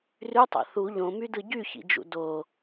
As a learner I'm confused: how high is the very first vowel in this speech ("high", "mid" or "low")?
high